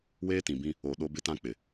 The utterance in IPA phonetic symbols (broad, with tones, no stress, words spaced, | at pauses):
weː˦tĩ˨bĩ˦ | o˨ ɗo˦bɪ˦tã˦ k͡pɪ˨